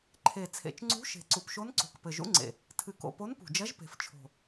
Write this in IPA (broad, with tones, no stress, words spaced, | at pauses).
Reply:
ǃʰe˨˩ t͡sʰḛ˨˩t͡ʃŋ͡ǀṳ˧˥ ʃe̤˨˩ǀu˨˩pʃo˧˥nǀo̤˨˩k pɘ˨˩ʒṵ˧˥ŋ͡ǀḛ˨˩ | tʰɨ˨˩ko̰˨˩ po˧˥npṳ˨˩d͡ʒɐ˧˥ʒ pe̤˨˩ft͡ʃʰo̤˨˩